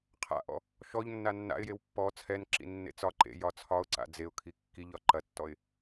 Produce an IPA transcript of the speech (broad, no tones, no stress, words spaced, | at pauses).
qʰa̰ʔɔ̰ | ʃɔʎ nːanːa̰ɪ̯jew pːɔ t͡sʰɛnǁḭ nːḛt͡sɒǃḛ jɒt͡sʰɒʊ̯ǀa̰ d͡zeʊ̯kʰi kːiʎɒ ǃɐtːɔɪ̯